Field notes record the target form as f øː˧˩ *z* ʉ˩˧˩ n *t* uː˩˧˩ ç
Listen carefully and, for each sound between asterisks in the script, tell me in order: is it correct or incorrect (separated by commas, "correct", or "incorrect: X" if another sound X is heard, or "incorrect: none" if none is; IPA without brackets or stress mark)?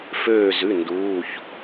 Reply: correct, incorrect: d